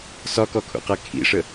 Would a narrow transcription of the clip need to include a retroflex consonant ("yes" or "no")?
yes